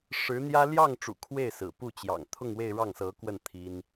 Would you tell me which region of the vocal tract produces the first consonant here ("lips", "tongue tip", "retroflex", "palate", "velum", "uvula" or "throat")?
retroflex